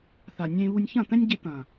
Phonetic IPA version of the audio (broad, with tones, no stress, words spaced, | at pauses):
θa˨nʲẽ˧βu˧nʲ çɐ̃˦˨t̪ɛ̃˦nʲɟe˧t̪ɐ̃˨